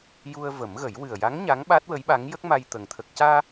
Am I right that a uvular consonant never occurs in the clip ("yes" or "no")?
yes